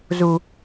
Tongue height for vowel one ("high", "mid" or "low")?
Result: high